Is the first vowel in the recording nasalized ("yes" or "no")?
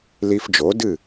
no